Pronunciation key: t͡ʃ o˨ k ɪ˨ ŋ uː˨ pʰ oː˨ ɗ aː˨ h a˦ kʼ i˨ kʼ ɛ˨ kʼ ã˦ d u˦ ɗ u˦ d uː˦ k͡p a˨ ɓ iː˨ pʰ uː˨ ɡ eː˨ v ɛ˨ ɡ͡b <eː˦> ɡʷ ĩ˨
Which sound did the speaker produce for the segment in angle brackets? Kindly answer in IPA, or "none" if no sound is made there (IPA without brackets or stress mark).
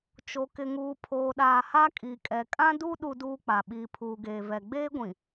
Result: eː˦